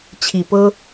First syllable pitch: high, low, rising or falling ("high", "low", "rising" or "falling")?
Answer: low